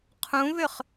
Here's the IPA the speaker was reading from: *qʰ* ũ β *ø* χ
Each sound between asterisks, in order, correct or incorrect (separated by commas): correct, correct